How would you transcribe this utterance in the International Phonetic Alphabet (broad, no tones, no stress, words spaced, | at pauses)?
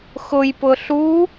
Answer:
xʊjpʊ ɬu